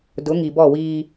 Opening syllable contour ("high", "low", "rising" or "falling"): rising